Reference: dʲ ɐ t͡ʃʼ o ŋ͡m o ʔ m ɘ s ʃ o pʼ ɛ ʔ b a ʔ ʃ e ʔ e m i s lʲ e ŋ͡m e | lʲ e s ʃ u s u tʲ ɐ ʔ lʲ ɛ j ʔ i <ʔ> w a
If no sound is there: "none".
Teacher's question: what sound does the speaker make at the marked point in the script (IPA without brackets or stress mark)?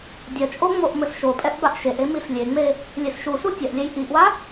ʔ